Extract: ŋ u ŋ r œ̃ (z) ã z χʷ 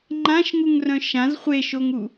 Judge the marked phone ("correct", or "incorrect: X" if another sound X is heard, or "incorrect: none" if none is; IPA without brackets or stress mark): incorrect: ʃ